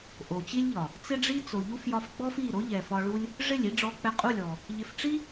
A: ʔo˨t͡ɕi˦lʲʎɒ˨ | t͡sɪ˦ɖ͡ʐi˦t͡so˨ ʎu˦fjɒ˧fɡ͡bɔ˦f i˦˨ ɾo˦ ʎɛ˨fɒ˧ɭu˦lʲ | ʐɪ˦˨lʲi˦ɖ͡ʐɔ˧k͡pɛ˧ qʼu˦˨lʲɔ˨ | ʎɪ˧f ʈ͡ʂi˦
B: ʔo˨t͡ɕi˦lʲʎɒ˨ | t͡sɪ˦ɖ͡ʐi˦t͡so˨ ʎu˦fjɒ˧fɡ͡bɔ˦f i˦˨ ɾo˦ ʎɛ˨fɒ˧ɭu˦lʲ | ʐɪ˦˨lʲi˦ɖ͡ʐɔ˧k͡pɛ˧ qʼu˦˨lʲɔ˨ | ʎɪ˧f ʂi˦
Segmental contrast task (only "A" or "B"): A